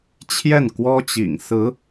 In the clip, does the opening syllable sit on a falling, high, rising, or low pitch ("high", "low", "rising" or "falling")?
falling